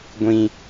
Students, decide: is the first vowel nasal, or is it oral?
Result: nasal